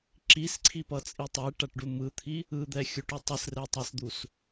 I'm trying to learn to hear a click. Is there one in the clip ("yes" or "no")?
yes